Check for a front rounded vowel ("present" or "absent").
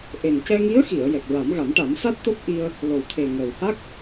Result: absent